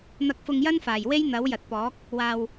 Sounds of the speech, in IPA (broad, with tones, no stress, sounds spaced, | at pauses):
n̪ ɐ˧ k̚ f ʊ˧ ŋ j ɐ˥ n f aː˨˩ j w e˥ j n̪ ɐ˨˥ w j ɐ˨ t̚ p ɔː˨˥ k̚ | w aː˧ w